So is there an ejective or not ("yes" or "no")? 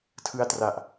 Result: no